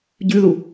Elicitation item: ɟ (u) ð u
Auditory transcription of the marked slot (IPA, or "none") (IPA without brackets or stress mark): ʉ